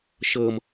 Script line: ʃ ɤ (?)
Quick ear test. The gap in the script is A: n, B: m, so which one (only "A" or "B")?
B